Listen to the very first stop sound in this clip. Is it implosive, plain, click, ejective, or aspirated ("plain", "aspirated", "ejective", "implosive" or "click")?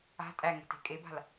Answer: ejective